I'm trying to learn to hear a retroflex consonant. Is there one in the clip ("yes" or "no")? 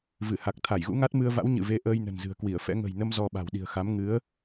no